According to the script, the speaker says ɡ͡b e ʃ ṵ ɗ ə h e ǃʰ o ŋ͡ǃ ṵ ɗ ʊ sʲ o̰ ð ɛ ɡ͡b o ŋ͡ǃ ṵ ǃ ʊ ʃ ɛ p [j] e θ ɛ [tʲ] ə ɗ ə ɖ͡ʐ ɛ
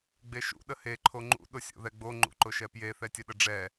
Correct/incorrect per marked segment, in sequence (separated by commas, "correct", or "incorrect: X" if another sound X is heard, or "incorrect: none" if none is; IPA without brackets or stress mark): correct, correct